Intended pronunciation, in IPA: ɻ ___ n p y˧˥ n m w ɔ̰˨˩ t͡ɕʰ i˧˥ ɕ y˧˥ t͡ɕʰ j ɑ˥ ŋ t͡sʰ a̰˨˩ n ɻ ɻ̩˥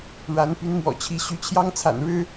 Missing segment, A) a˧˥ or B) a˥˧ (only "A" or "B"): A